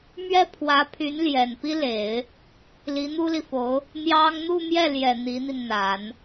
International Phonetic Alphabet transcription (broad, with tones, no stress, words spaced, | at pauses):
mɥɛ˥pʰwä˧˥pʰy˧˥n ljɛ˨˩npi˥le˨˩˦ɪ̯ | li˧˥n̪u˥li˨fo˧˥ʊ̯ | n̪jɑ˥ŋ n̪u˥˧mjɛ˥˩ljɛ˨˩ n̪i˧˥n̪i˧nn̪a˨˩˦n